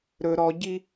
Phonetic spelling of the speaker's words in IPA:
ɾ ɵ ɾ ɔ ɟ i

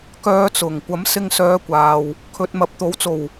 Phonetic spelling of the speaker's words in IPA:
k œː˨˧ t͡s ʊ˨˩ ŋ kʷ ɐ˨˥ m s ɪ˧ ŋ s œː˨˧ kʷ aː˨ w | kʰ ɵ˨ t̚ m ɐ˨ p̚ t̪ o˨˥ w t͡s o˨˩ w

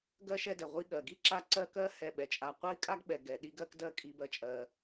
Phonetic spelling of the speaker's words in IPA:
ɡ ɜ˥ ʃ ɛ˦ d ɛ˩ ʁʷ i˦ ɠ ɜ˩ ɡ i˥ ǁ a˦ ǀ ɜ˥ k ɜ˥ h ɛ˨ ɓ ɛ˩ t͡ʃʼ a˨ qʷ ɜ˥ i̯ kʼ a˥ ɡ ɓ ɛ˩ ɡ ɛ˩ ɗ i˦ ɡ ɜ˦ k d ɜ˦ kʼ i˨ b ɜ˨ t͡ʃʼ ɜ˩

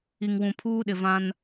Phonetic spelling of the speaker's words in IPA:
i˨ ŋ w ũ˨ pʰ uː˦ ɗ ɪ˨ v ã˦ n

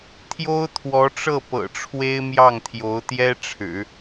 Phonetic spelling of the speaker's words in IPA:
t̪ʰ j o˥ ʊ̯ t̪ʰ w ɔ˧˥ ʈ͡ʂ ɤ˥˩ p ɤ̰˨˩ ʈ͡ʂʰ w e˥ ɪ̯ m j ɑ˥˩ ŋ t̪ʰ j o˧˥ ʊ̯ t̪ j ɛ˥ ʈ͡ʂʰ ɻ̩˨˩˦

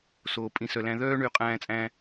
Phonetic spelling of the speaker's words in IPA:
s oː˨ pʼ ĩ˨ s œ˨ l æ̃˧ ð œː˦ ɳ y˨˦ qʼ æ̃ː˧ t͡sʼ æ̃˧

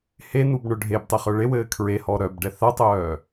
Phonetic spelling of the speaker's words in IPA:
h e n u b ɳ œ ɖʱ e b tˤ e χ œ ɭ e w ɘː kʰ ɹ e h ɔ ɾ œ b ɖ ɛ θ a tˤ œː

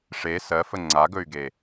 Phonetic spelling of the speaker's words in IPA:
ʂ e s ɜ f ə ŋ͡ǀ a ɡ ɵ y̯ ɡ e

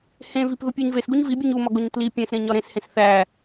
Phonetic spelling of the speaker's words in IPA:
h ẽ v i p ð u pʲ u ɲ v e s ɡ u ɲ v i bʲ u ɲ u m ɒ ɡ o ɲ t l i pʲ æ̃ s ɾ ẽ ɲ ɒ ɾ ẽ s h ẽ s θ æ

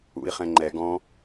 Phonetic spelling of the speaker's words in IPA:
ṵ i̯ χ ɛ̃ ŋ͡ǃ ɛ ɡ ɔ̃

